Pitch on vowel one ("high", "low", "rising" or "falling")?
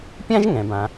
high